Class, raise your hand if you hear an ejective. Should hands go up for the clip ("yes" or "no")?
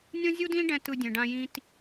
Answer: no